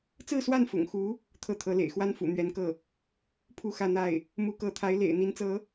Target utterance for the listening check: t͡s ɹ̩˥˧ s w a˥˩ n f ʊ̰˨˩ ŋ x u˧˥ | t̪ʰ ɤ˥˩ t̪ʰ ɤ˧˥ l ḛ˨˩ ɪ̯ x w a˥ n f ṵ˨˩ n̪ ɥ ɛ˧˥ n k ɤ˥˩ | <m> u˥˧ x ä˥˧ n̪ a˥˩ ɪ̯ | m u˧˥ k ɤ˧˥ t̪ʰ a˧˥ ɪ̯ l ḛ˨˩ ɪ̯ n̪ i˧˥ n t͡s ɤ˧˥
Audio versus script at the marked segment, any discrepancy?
yes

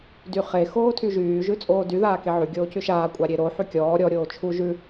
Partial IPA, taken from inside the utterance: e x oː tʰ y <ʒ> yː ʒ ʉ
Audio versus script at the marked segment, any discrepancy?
no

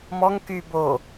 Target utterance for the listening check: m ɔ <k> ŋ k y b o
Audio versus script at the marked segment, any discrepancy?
yes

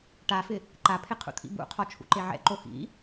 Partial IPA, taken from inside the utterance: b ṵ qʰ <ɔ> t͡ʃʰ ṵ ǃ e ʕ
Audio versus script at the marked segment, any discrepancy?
no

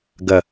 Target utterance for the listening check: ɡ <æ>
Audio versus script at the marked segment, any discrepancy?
yes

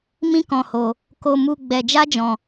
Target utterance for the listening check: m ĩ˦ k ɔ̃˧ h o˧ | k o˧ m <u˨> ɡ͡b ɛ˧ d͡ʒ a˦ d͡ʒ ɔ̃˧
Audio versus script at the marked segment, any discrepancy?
yes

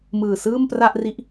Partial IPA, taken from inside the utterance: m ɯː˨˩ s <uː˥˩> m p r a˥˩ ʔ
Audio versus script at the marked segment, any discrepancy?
yes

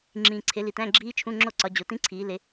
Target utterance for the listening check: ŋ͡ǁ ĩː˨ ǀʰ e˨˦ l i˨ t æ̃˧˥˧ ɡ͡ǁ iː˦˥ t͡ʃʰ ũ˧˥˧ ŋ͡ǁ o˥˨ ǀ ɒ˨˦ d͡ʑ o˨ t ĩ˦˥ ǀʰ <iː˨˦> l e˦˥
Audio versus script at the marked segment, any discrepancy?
no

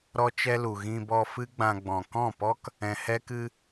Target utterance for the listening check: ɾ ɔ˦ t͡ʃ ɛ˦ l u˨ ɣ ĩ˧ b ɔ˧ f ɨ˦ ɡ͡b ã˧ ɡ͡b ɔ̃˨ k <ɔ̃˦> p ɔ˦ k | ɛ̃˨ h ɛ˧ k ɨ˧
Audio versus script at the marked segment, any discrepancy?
yes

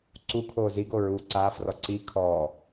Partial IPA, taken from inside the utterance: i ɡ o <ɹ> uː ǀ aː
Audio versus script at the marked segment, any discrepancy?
no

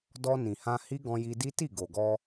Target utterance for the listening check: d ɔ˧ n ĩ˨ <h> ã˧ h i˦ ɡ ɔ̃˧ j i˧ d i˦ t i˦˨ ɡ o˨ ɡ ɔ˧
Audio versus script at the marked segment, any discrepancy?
no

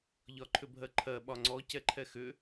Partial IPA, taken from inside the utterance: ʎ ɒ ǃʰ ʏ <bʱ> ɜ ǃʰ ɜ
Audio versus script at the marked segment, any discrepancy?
no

